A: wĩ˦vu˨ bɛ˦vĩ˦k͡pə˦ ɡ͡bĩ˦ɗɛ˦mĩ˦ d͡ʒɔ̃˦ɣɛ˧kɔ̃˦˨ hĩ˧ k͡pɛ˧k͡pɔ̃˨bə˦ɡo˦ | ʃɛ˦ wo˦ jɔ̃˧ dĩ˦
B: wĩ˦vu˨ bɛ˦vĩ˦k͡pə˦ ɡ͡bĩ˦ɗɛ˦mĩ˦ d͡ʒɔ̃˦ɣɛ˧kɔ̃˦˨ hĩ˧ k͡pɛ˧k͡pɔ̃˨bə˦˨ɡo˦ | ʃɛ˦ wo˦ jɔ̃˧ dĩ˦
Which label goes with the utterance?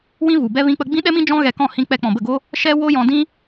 B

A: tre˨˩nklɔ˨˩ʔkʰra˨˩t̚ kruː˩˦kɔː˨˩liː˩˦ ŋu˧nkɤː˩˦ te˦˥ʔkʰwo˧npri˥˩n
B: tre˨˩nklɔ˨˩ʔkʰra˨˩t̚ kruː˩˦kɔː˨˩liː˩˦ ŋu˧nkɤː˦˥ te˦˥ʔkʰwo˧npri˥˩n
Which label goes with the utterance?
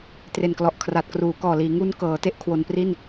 A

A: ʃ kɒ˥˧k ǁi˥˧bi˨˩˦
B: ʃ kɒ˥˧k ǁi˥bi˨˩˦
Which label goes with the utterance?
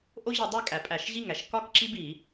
B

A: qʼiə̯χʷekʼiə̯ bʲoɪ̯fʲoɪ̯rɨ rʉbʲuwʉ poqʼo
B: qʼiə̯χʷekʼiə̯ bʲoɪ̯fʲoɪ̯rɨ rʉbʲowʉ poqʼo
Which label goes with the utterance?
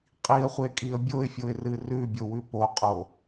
B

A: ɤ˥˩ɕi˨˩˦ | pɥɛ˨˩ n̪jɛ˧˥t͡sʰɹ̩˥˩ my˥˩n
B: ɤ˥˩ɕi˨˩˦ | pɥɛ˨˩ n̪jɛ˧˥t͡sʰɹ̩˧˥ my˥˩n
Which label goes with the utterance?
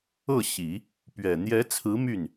B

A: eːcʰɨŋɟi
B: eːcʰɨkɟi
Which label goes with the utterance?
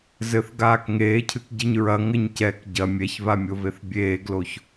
B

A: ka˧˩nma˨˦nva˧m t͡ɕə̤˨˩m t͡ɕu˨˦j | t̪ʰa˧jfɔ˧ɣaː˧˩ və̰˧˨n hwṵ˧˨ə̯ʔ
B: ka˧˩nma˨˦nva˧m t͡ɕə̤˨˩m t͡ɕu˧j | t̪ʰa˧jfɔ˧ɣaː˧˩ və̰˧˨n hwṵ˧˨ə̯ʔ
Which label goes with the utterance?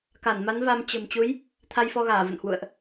A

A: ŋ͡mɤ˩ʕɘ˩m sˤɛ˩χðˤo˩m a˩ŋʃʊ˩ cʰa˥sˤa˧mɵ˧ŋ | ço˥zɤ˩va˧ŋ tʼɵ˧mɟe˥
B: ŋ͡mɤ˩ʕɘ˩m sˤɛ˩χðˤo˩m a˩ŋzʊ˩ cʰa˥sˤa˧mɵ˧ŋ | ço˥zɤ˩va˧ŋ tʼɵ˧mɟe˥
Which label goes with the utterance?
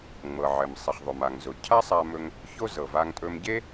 B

